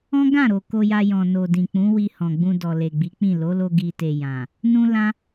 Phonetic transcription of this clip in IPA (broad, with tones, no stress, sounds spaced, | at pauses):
ɔ̃˦ ɡ ã˦˨ ɾ o˨ k o˧ j a˧ j ɔ̃˨ n o˨ d ĩ˨ k͡p ũ˨˦ w i˧ h ɔ̃˨ ɡ͡b ũ˧ d ɔ˨ l e˨ ɡ͡b i˨˦ k͡p ĩ˦˨ l o˨˦ l o˧ ɡ i˨ t e˨ j ã˨ | n ũ˦ l ã˦